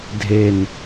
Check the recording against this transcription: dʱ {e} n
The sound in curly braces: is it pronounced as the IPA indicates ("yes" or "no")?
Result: yes